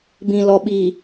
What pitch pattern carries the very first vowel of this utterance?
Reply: low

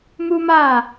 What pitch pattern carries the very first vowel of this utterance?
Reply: high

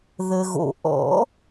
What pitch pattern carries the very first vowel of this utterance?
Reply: low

